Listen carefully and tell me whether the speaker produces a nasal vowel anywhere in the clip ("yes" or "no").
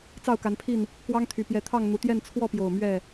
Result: no